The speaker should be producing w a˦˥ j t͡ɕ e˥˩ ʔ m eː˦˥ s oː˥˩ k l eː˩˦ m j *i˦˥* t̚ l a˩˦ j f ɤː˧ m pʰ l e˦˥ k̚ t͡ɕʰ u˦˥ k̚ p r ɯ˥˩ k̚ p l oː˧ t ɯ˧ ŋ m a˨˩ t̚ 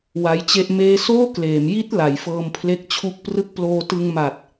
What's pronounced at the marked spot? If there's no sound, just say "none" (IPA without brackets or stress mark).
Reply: i˦˥